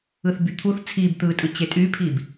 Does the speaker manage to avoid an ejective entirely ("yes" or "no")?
no